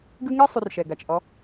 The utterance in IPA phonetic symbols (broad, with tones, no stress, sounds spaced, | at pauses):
ɡ ɯ˦ ŋ ɛ˦ sˤ u˧ r ʃ ɛ˨ ɡ a˨ t͡ʃ ʔ ɔ˧